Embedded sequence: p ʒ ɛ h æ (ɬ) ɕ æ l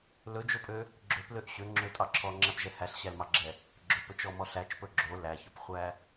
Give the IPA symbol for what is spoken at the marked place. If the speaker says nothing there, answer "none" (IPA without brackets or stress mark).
ɬ